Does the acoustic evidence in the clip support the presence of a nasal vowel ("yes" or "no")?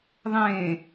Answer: yes